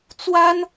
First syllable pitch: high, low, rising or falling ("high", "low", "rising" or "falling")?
high